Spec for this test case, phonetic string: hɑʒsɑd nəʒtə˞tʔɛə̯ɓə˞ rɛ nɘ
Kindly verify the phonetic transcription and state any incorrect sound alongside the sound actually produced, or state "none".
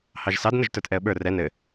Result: none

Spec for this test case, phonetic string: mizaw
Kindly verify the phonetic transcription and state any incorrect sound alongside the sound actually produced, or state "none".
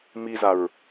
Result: w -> ɹ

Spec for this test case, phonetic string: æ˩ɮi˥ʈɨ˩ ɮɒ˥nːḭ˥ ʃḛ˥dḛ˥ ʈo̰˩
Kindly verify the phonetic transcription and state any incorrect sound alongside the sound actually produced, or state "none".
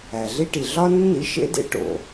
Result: ɨ˩ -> i˩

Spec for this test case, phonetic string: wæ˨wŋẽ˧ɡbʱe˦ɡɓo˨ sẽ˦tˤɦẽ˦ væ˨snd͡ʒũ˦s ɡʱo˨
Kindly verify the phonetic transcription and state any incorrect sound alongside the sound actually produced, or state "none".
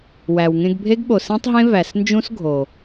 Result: none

